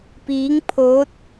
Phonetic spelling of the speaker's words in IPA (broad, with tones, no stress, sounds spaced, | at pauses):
p iː˧˥ ŋ pʰ oː˧˥ t̚